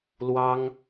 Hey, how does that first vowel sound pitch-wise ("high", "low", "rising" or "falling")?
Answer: high